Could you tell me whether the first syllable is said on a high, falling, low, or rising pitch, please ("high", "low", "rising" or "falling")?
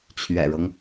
low